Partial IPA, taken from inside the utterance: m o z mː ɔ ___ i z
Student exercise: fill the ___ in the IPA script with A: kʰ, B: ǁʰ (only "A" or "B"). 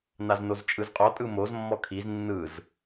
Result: A